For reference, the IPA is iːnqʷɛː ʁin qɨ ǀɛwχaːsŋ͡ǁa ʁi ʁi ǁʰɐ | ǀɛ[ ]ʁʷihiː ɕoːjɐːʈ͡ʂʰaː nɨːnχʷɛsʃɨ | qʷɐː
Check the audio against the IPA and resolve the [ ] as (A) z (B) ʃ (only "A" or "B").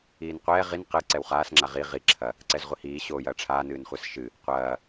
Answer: A